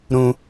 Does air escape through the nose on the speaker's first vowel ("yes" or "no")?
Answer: yes